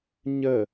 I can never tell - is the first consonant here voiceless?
no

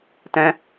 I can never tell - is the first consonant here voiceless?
yes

